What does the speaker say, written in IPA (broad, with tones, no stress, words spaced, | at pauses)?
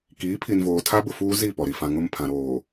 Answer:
kiː˨˦pʰi˨nvoː˨ tʰa˦bʊ˨fuː˦ zi˦˨ pɔ˨ɾi˨ fã˨ŋʊ˦˨mpʰã˨ɾoː˨